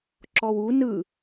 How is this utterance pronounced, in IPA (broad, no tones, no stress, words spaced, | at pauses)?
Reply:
ǁɔwu nɯ